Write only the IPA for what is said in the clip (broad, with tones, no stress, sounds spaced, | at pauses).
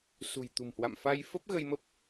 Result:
s ṳ˨˩ j t̪ ṳ˨˩ m h w a̰˧˨ m f a˧ j f ə˦˥ p̚ ɣ ə˧ j m ə˦˥ p̚